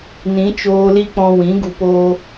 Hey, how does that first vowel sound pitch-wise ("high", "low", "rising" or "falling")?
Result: rising